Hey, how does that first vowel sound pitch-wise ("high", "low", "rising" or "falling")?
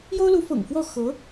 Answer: high